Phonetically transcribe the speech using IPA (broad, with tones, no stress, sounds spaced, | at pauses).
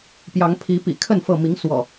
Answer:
p j ɑ˨˦ ŋ pʰ i˨˦ p ḭ˨˩ kʰ ə˥˨ n f ɤ˥˨ m i˨˦ ŋ s w ɔ̰˨˩